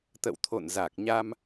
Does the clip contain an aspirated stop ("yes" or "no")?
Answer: yes